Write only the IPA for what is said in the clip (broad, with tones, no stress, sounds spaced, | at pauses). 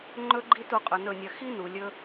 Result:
ŋ͡ǃ ɵ˦ ɡ͡ǃ i˦ t u˧ qʼ ɵ˨ n ɵ˦˨ nʲ ɐ˧ x i˦ n u˨ lʲ ɵ˦